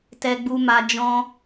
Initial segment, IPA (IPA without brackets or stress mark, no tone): t